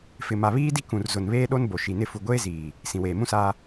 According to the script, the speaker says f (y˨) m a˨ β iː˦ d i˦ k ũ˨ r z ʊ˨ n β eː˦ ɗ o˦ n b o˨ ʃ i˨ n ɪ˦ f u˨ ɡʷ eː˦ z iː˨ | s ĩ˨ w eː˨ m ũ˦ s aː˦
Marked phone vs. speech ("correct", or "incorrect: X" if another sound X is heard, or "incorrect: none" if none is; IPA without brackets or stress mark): incorrect: ɪ˨